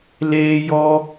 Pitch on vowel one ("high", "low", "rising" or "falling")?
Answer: high